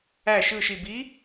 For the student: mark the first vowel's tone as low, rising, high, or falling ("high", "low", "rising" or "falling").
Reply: falling